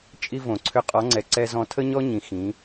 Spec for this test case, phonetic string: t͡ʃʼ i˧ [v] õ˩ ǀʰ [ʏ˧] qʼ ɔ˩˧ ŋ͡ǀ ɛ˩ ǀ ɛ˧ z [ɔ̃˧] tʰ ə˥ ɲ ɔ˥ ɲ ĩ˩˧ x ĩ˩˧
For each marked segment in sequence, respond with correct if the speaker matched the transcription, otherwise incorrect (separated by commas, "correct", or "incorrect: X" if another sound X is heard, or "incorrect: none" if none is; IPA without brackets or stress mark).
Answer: correct, correct, correct